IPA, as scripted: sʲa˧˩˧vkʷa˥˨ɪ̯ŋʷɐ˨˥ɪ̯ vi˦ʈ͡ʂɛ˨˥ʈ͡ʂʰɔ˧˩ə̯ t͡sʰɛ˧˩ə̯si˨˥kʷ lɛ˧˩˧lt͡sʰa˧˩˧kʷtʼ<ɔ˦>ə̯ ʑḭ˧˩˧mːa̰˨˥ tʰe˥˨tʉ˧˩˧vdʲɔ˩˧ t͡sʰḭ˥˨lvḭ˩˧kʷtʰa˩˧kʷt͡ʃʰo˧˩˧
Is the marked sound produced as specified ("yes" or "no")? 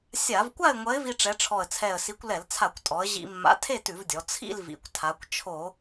no